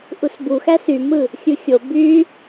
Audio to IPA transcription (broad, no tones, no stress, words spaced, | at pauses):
ʔusbuxæ symɯ | xʲɯxʲo by